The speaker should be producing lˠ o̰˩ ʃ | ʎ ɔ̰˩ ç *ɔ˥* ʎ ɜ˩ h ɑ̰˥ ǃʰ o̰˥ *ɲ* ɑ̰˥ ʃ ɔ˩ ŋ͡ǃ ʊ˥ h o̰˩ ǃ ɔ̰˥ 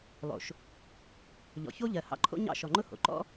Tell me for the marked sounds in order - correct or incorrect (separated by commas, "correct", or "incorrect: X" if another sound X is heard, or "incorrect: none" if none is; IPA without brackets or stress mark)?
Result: incorrect: o˥, correct